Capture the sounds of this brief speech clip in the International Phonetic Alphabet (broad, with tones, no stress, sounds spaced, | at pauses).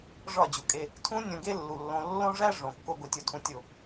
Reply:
ʐ ɒ˦˨ d͡ʑ u˨ kʼ e˧ | tʰ ũ˦ nʲ õ˧ ɡ e˦ lː u˨ lː õ˧ lː õ˦ ʐ æ˦ ʐ õ˨ kː o˧ ɡ o˧ tʲ u˨˦ tʰ ũ˧ tʲ o˦˨